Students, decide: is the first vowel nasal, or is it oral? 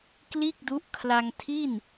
oral